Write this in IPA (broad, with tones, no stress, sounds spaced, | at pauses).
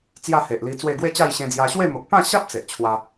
t͡s j a˥˧ h e˨ ʔ l i˧ t͡s w e˥˧ ɡ w e˥˧ t͡ɕ a˥˧ j ɕ ẽ˧ d͡z j a˧ ɕ w e˥˧ m o˨ k̚ p ã˥˧ ɕ a˦ p̚ t͡s e˨ ʔ t͡ɕʰ w a˧